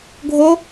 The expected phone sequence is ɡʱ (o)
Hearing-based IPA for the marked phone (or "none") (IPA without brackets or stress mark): o